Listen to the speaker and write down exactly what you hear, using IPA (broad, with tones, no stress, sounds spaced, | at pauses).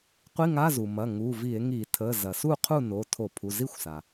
qʷ i˧˥˧ ŋ a˧˥˧ z u˩ m ɐ˩˧˩ ŋ u˩˧˩ v i˧˩˧ e̯ ŋ i˧˩˧ tʰ ə˩˧˩ z ɐ˩ s u˥˨ qʰ u˥˨ n o˩˧˩ tʰ o˧˩˧ pʰ u˩˧˩ z i˥˨ xʷ s a˩